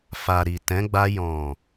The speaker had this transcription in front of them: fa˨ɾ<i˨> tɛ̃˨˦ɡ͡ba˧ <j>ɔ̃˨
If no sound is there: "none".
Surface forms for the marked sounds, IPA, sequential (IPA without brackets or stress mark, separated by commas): i˨, j